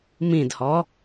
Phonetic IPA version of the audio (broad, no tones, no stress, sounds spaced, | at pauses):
m ĩ d h ɔ